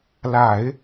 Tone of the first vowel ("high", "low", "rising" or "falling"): low